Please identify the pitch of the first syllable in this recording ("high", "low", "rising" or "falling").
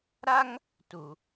high